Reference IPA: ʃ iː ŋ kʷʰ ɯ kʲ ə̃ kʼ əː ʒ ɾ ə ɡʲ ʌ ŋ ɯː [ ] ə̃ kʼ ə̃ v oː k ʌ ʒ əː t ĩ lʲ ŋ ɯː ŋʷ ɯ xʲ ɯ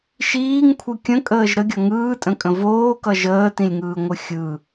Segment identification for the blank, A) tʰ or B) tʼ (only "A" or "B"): B